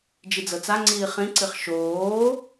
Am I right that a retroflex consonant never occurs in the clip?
yes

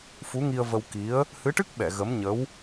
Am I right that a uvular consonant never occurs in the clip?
yes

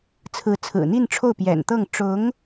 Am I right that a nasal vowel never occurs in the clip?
yes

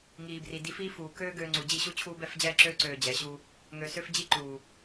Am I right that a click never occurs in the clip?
no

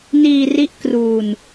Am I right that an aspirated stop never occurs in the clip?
yes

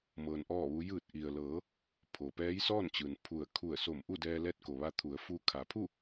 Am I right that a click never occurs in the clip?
yes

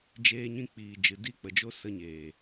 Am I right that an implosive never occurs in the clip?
yes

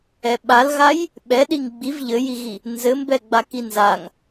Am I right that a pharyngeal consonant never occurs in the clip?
yes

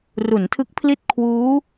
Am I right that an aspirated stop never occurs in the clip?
no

